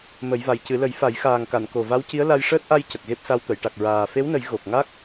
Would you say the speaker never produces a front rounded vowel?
yes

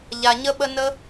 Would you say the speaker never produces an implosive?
no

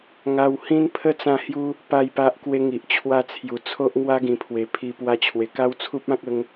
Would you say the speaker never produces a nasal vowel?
no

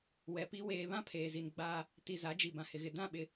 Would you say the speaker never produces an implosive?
no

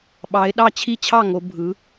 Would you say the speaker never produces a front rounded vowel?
yes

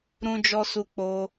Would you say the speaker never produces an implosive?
yes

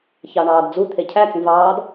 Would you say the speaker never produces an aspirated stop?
no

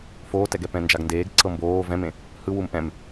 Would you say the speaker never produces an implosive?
yes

